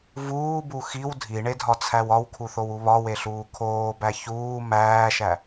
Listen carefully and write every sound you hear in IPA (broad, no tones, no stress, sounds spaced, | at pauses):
v uː b u x i w dʱ i ɳ e dʱ ɒ t͡sʰ æ w ɒ w kʰ u θ o w u β ɒ w e ɬ uː kʰ oː b æ ç uː m æː ʃ æ